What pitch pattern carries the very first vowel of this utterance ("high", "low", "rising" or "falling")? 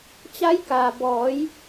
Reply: rising